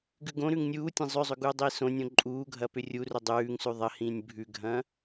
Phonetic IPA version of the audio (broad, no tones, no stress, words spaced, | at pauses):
ɡʉɡõɾʉŋ nʲuːtʲɐ̃ zˤʏzˤʏ ɡuːdˤiːsõnʲõ ǃʼuːɡʱɐ pʏrʲurʏ dˤʉːŋ sʉðˤɐhĩːnʲ bʱʉɡʱɐ̃